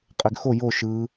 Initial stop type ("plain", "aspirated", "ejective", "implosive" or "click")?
ejective